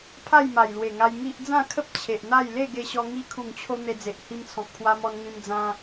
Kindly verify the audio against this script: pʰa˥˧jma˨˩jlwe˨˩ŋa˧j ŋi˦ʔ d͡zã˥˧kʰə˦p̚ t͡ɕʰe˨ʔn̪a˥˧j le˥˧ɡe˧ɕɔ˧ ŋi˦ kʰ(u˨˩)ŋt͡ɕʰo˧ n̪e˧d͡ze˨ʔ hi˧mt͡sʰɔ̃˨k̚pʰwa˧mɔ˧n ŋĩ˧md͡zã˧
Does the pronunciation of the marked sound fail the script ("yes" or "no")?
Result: no